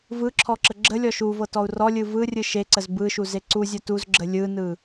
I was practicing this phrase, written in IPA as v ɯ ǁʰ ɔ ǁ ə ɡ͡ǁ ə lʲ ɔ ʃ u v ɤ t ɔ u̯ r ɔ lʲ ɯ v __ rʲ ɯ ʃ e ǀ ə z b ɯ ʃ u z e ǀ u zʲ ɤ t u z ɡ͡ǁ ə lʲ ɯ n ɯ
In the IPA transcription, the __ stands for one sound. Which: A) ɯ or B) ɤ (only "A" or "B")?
A